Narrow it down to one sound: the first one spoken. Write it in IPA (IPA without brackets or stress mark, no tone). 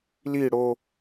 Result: l